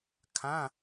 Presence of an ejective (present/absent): absent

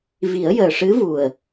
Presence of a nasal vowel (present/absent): absent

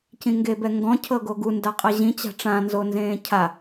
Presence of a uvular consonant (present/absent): present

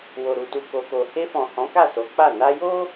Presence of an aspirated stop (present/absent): absent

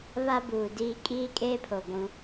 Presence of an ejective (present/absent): present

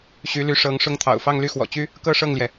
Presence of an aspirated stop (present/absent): present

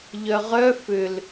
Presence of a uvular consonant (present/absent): present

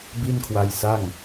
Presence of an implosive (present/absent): absent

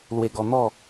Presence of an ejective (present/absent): absent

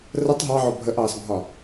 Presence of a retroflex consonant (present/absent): absent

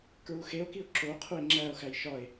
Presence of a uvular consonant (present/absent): present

